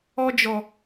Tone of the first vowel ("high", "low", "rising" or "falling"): high